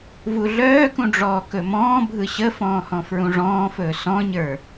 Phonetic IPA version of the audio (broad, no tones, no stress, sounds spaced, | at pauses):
v u ɮ œː k ũ ɖ͡ʐ ɔː k ɵ m ɔ̃ː bʱ ɯ ɕ ə f ɔ̃ː h ɔ̃ f ɹ ũ ʐ ɔ̃ː f ɵː s ɔ̃ ɲ ə˞